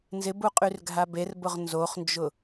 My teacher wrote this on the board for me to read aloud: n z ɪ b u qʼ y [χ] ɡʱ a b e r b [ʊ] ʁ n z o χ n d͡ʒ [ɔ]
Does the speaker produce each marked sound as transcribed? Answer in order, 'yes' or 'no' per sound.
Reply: no, yes, no

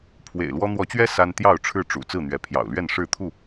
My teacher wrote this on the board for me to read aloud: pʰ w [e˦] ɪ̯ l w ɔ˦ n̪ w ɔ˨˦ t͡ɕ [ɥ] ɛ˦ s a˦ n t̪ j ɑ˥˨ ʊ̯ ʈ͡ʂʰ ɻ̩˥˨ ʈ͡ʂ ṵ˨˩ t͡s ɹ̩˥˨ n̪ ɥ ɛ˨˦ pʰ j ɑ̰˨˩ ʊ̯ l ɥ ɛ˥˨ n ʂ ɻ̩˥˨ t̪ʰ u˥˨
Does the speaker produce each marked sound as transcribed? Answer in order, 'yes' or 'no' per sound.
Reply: no, yes

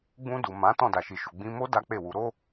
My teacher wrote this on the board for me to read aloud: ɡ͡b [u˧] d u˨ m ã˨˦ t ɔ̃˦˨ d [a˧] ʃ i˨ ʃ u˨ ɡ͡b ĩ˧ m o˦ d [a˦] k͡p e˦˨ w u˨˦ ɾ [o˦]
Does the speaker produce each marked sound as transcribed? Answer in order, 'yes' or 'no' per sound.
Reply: no, no, yes, yes

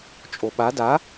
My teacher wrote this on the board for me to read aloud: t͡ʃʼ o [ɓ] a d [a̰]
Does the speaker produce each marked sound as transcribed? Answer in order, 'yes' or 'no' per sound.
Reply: yes, no

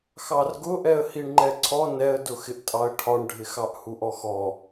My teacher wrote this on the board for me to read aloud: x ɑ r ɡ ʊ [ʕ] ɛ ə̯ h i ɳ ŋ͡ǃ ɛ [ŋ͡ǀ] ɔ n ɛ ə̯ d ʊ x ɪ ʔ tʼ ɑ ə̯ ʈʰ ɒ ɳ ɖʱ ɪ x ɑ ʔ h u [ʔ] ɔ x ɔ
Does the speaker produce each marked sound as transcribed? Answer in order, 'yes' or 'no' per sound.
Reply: no, no, yes

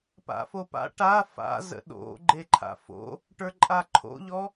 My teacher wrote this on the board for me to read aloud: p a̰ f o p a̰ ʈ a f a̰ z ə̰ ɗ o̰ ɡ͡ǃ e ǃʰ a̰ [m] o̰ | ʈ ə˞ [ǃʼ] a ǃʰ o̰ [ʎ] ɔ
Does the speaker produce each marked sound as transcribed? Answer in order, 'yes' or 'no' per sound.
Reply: no, yes, yes

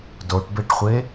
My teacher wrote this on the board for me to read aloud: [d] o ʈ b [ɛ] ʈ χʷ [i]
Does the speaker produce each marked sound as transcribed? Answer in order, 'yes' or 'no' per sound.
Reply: yes, no, no

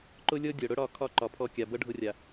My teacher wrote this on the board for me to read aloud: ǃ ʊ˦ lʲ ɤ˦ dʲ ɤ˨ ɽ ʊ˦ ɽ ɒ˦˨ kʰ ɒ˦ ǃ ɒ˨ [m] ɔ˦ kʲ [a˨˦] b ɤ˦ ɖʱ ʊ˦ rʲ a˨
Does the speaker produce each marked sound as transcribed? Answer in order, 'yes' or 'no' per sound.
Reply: no, no

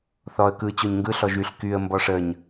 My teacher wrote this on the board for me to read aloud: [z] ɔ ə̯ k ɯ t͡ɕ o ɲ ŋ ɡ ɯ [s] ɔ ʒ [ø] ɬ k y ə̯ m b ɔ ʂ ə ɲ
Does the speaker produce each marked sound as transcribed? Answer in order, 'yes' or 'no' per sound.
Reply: no, no, no

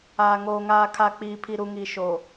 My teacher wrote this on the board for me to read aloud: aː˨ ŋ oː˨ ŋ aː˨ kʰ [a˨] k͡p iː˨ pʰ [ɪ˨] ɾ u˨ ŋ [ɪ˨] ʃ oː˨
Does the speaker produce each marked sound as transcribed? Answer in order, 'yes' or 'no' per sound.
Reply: yes, no, no

